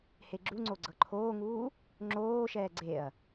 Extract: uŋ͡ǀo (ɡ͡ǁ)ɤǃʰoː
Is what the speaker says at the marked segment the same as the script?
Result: no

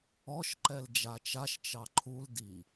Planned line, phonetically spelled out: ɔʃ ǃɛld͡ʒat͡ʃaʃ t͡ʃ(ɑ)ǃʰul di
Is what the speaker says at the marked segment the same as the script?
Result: yes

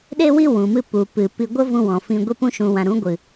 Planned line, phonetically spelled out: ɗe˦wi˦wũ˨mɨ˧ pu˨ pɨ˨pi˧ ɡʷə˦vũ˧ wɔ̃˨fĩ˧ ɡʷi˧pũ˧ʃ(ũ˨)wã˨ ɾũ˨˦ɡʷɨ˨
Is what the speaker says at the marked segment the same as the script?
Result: yes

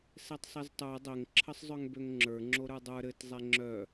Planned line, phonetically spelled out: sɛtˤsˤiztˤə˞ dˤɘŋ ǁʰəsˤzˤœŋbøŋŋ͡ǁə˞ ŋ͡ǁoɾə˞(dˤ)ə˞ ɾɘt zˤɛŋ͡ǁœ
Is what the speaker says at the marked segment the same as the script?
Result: yes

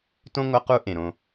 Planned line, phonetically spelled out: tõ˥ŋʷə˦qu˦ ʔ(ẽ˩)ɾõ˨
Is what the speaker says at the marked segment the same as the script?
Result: yes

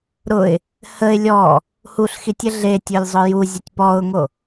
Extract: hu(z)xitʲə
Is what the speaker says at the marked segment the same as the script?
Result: no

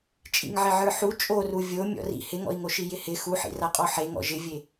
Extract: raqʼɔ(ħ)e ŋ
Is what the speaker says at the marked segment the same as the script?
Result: yes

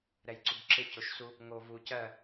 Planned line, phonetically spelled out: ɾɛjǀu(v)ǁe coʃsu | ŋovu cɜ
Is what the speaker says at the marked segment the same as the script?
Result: no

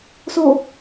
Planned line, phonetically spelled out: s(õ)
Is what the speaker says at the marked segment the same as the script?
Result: no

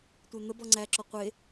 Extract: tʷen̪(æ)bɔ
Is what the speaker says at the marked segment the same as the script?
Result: no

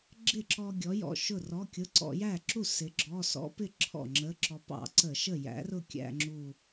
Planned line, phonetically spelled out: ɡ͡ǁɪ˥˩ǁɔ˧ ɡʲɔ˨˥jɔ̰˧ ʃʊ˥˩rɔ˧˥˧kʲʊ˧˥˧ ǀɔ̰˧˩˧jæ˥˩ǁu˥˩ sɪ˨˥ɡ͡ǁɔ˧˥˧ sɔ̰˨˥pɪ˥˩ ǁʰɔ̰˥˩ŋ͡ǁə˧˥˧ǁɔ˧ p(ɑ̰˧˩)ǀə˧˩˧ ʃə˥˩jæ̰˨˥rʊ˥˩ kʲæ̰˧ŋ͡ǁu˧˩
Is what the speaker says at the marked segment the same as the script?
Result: no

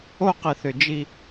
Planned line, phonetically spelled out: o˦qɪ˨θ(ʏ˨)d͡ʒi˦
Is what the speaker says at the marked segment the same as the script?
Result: yes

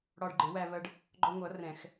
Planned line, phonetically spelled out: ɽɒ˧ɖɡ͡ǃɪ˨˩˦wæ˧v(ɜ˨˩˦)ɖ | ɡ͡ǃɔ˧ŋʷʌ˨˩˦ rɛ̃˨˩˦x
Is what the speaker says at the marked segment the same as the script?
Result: no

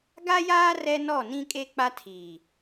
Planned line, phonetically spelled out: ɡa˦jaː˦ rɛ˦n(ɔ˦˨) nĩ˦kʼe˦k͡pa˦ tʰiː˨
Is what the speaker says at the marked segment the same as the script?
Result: yes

